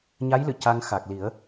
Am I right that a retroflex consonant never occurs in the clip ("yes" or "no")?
yes